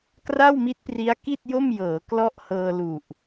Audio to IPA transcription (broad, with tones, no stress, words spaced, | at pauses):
kra˥˩wmi˦˥t̚pri˦˥a̯ki˥˩t̚ jo˥˩mjɤː˩˦ klɔ˥˩ʔhɤː˧lu˨˩ʔ